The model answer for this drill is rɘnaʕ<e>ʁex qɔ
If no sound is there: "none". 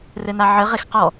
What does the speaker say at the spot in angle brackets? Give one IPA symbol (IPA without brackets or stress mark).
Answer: ɘ